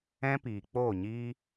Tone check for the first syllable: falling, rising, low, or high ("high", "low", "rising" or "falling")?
high